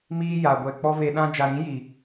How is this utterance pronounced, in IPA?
m iː˦ j a˨ ɡʷ ɛ˨ k͡p ɔ˦ v e˧ ɗ ã˦ d͡ʒ a˨ ɾ ĩ˨˦ j i˨

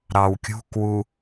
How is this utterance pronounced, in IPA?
ɾ ɑ w kʲ ṳ k w u

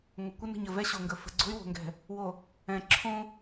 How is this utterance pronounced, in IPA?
ŋʷ ə˨ kʷ ə˦ n ə̤˨ ɲ ə˨ v ɛ˦ ɕ o˨ ŋ ɡ ə˨ f ə̤˨ ɡ͡ǀ o̤˦ y̯ w o̤˨ ŋ ɡ ɛ̤˨ | w o˨ | ɛ̃˨ ǁʰ õ˦

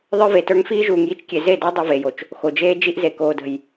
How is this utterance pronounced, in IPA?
ðˤ ə˞˦ v e˨ t ə˞˦ ŋ f iː˦ ʒ uː˨ ŋ j i˦ t͡ʃ kʲ e˨ z e˦˨ d əː˦ dˤ o˦ v eː˨ j o˨ t͡ʃ | x o˨ d͡ʒ eː˦ d͡ʒ i˦ ʔ z e˨ k oː˨ d ə̤˨ j

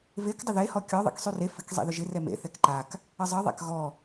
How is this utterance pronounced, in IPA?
v e k dˤ ɪ ð e h ɔ kʲ ɔ ðˤ ḛ k sˤ y r e f ɪ k zˤ ḛ ð ʏ ʒ ɪ r ɛ m ḛ θ ɛ k ǃ a k | ə zˤ ə ðˤ a̰ k ɣ ɔ

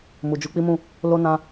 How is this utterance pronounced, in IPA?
m u˨ d͡ʒ u˨˦ k͡p i˦ m ũ˦˨ | l o˦ n ã˧

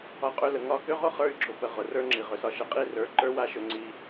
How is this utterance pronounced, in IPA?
ɒ˧ qʼ ø˧ l ə˨ ŋ ɒ˦˨ k ø˦ ʁ ʊ˦ χ ə˞˧ y̯ ɡ͡ǁ ʊ˨ p ə˨ ʁ ʊ˨ r ə˞˦ ŋ͡ǁ i˨ ʁ ø˨ s ɒ˧ ʃ ə˨ qʼ i˦˨ r ə˞˨˦ ǃ ə˞˦ w a˦ ʃ ø˧ ŋ͡ǀ i˧

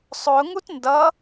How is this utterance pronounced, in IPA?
sˤ ʊ ŋ u t n d ʌ

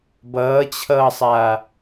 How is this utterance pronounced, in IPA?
b ʌː t͡ɕʰ ʌː sˤ a

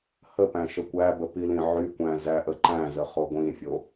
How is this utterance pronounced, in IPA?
h ə p æ̃ ʃ ə kʷ æ b ə p i l ĩ ʕ y kʷ æ̃ z æ ʔ ə ǃ æ̃ z ə χ o ɡʷ ĩ fʲ o

